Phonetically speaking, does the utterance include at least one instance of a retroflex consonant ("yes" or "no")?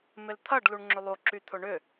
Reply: yes